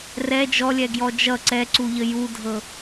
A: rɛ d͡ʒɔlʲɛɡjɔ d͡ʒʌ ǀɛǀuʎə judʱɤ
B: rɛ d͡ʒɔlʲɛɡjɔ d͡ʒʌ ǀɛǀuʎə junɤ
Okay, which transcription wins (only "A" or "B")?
A